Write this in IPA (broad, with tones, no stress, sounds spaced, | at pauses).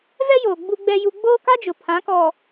v ɛ˦ j oː˨ ɡ͡b u˦ ɡ͡b ɛ˦ j u˦ ɡ͡b oː˦ k a˦ d͡ʒ ʊ˨ pʰ ã˨˦ k ɔ˨